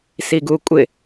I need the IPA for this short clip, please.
s i ɡ u kʷʼ ɪ

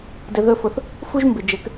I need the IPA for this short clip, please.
d ɘ˧ ð ɵ˦ f ʊ˧ θ | f u˦ ʒ m b ɪ˨ d͡ʒ ɘ˨˦ k

